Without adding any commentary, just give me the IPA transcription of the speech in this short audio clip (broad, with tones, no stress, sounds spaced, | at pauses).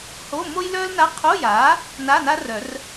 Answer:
h o˧˥˧ m o˥ j l œː˥ l n a˧˥˧ qʰ o˧˥˧ j aː˩˥ | n a˧˥˧ n a˥ r œ˨˩˦ r